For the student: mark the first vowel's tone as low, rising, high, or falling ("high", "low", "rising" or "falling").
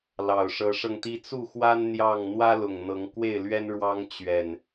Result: low